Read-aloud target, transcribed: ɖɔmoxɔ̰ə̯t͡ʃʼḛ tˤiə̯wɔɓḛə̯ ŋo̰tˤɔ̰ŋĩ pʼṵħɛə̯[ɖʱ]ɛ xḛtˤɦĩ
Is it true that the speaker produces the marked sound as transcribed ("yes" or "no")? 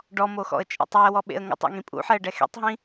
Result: no